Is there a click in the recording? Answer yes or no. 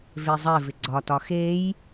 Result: yes